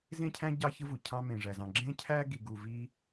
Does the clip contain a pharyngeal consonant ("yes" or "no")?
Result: no